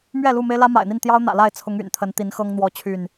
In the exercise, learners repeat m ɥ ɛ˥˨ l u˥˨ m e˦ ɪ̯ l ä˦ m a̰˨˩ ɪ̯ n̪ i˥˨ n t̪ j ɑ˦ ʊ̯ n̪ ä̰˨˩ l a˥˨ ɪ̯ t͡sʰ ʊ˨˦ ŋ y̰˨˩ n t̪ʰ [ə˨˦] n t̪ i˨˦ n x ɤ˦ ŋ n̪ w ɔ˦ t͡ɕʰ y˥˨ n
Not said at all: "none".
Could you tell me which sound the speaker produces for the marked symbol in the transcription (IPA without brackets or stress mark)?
ə˨˦